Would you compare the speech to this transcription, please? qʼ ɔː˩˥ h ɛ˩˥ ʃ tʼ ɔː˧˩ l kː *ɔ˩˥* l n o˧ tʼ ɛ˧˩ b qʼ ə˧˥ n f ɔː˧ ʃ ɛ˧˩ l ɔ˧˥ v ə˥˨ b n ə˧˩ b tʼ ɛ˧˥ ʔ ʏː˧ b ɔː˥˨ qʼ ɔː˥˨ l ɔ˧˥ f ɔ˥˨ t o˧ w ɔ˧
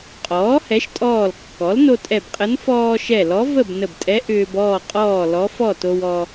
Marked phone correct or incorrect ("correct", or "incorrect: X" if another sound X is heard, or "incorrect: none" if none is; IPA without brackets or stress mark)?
correct